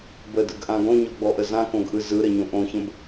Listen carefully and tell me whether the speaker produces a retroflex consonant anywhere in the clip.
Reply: no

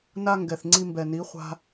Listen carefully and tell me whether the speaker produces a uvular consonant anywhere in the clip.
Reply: yes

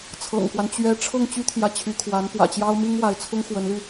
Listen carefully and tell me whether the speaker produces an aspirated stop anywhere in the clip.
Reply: yes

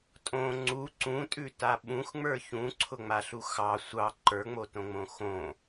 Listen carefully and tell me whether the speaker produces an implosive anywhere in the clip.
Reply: yes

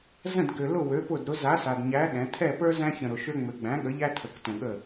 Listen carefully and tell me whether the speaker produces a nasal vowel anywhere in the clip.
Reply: yes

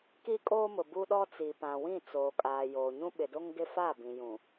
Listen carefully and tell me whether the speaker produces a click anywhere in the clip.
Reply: no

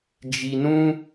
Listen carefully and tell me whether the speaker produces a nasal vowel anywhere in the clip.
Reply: yes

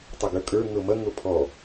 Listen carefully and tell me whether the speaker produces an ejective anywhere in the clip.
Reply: yes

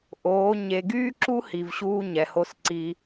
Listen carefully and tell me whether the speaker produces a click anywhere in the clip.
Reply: yes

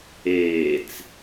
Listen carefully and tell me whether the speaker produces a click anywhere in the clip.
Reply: no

